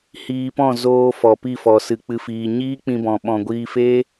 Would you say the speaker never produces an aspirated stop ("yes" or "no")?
yes